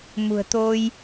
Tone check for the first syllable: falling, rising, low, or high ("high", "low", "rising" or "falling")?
low